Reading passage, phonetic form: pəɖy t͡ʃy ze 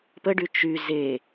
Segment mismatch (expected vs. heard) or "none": none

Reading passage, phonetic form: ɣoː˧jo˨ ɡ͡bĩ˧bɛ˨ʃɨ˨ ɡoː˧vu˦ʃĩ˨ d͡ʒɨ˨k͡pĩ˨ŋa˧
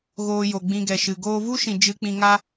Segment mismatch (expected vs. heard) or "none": b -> ɡ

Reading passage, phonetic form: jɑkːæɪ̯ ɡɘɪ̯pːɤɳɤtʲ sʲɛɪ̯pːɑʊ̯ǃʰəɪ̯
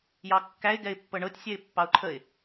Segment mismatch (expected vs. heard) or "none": ɘ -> ɛ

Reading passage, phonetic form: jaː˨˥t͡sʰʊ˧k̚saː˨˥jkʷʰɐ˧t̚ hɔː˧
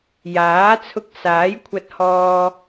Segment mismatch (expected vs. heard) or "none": none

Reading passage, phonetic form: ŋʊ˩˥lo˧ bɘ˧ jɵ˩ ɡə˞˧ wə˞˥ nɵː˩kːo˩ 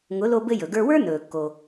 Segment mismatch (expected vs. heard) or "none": none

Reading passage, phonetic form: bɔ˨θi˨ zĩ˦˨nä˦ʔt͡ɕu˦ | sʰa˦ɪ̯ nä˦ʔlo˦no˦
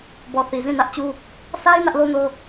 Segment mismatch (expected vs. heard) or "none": none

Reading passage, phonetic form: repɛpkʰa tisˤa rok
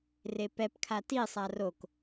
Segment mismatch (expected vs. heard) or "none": none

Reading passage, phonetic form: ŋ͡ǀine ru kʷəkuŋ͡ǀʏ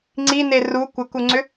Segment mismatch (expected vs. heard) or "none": none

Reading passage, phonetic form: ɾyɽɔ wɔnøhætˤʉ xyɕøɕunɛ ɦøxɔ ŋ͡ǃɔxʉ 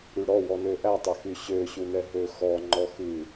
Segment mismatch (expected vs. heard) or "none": h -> ʔ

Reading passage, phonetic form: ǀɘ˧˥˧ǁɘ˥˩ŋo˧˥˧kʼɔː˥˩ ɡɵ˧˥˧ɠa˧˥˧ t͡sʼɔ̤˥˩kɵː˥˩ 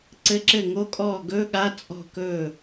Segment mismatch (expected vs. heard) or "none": none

